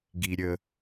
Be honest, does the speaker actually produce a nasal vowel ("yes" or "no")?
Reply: no